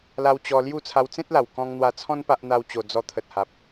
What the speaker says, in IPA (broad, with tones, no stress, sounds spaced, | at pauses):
l a˧ w t͡ɕ ɔ˧ l j u˥˧ t͡sʰ a˧ w t͡s ẽ˦ t̚ l a˨˩ w k ɔ̃˧ ŋ n̪ w a˧ t͡sʰ ɔ̃˦ n p a˦ ʔ n̪ a˦ w t͡ɕ o˧ d͡z ɔ˧ t̪ʰ ə˨ t̚ h a˨ p̚